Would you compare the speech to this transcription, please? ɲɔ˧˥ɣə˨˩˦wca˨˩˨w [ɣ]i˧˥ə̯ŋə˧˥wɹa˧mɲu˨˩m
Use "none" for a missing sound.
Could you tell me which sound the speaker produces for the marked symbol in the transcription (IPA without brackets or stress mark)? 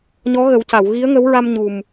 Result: ɣ